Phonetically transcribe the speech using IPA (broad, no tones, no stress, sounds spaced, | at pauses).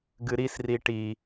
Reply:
ɡ ɨ ɾ i s r i ʈ i